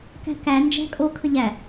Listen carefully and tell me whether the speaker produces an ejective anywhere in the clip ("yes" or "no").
yes